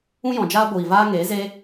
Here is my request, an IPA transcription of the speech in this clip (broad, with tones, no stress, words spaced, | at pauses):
ũ˦jɔ̃˨ d͡ʒaː˦ ɡʷiː˨vaː˦ ŋeː˨˦ze˦